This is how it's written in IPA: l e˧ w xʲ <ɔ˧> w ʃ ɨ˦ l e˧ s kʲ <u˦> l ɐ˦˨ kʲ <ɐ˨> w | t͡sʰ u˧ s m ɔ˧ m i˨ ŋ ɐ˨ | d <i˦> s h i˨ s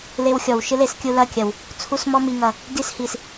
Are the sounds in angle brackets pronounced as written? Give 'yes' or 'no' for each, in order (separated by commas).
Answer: no, no, yes, yes